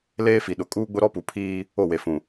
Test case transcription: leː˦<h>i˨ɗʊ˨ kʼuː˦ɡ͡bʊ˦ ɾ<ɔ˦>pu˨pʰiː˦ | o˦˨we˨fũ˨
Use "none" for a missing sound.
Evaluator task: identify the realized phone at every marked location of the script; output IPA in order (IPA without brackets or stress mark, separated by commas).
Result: f, ɔ˦